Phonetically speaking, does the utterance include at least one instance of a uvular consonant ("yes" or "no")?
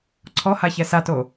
no